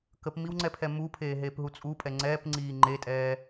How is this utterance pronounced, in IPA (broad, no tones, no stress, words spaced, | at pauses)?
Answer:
kəpmiwŋ͡ǀɛpʰɛ mupʰeːɦeːpɦu t͡sʼupʼɛ ŋ͡ǀɛːpŋ͡ǀiː ŋ͡ǃetʼɛː